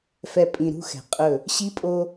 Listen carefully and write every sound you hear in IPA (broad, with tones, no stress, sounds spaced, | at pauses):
f ɛ˨ pʼ ĩ˨ ɾ ṳ˦˨ x ɛ̤˨ qʼ ɵ˦˨ | ɕ i˦ pʼ o˦